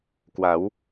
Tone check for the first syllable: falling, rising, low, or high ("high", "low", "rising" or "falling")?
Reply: rising